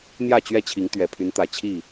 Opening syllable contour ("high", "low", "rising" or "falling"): falling